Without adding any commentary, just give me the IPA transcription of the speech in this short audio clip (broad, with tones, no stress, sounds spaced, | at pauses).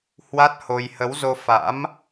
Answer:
h w a˦˥ t̚ h o˧ j h ə˨˦ w z o˧ f a̰˧˥ m